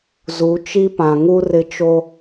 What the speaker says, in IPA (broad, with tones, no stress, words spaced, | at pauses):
zu˨˦ t͡ʃi˦pã˨ŋu˦ rɪ˦t͡ʃo˦